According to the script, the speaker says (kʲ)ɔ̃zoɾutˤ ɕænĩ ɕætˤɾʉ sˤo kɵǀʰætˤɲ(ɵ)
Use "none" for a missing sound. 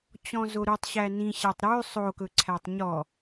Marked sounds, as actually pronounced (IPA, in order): t͡ɕ, ɔ

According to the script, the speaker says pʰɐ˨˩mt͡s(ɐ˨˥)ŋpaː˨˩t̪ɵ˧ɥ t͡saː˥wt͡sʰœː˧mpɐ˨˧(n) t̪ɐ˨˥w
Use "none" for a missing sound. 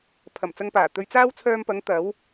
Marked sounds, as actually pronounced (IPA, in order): ɐ˧, ŋ

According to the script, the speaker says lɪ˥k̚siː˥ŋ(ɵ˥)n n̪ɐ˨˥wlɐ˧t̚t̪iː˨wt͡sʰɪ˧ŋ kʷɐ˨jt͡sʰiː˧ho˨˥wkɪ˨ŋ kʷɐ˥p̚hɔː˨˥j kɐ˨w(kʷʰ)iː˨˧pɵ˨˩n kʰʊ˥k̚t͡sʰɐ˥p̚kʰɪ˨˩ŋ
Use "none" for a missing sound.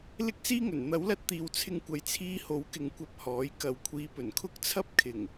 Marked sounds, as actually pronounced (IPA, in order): ɵ˨˩, kʷʰ

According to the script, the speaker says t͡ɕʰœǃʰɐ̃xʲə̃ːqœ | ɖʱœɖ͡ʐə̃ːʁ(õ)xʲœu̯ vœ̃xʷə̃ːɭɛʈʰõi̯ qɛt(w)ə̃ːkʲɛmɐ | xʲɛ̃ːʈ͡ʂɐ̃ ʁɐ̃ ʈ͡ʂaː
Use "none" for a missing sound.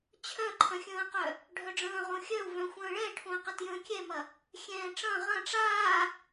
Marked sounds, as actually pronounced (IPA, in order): õ, j

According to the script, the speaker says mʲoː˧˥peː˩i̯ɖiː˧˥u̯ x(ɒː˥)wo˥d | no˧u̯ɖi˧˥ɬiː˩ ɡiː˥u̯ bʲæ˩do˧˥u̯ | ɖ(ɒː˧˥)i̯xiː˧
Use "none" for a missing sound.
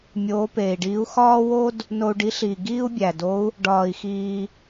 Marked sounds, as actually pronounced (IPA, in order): ɒː˥, ɒː˧

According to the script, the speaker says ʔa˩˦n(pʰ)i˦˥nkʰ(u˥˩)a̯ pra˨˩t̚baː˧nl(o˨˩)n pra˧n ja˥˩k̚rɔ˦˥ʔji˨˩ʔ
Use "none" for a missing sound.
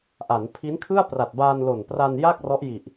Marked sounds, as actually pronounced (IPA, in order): pʰ, ɯ˥˩, o˨˩

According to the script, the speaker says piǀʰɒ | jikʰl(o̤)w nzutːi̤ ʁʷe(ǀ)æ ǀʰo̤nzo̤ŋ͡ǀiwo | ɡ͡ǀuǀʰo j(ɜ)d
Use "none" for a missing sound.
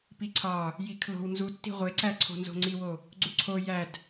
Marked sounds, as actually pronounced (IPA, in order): o̤, ǀ, æ

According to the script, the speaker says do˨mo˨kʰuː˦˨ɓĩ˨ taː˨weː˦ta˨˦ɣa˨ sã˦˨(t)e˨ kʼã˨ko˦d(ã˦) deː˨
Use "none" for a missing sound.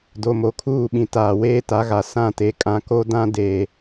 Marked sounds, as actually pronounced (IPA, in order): t, ã˦

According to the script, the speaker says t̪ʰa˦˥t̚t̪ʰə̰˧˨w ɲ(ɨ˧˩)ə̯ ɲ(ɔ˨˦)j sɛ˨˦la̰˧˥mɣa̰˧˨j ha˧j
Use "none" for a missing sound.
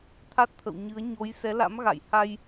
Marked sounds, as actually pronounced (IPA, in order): ɨ˨˦, o˨˦

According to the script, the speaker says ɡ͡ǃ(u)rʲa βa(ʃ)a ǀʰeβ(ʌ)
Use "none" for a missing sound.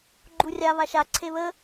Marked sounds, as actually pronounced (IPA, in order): u, ʃ, ə

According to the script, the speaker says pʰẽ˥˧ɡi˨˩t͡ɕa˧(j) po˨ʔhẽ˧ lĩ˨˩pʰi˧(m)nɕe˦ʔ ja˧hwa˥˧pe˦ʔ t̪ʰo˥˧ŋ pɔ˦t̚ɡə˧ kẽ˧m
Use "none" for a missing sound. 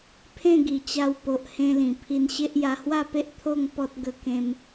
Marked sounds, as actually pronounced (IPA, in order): w, none

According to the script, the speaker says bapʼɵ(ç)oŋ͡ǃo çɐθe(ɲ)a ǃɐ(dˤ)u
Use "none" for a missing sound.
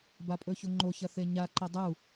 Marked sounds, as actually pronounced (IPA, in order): ç, ɲ, dˤ

